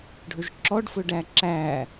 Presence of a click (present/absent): present